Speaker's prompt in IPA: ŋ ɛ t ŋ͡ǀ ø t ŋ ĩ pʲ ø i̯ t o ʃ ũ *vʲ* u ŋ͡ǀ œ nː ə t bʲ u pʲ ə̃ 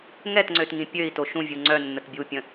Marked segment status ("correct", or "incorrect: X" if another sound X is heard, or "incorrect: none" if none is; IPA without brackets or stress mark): correct